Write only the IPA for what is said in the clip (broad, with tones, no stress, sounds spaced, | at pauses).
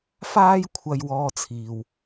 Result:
f aː˥ j kʷʰ ɐ˧ j w ɔː˧ t͡sʰ iː˨ w